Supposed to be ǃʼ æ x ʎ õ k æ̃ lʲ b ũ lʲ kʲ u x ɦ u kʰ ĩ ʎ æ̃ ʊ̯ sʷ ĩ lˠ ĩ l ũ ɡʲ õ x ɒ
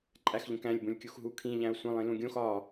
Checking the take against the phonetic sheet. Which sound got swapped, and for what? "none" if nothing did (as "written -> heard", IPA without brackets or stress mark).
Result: none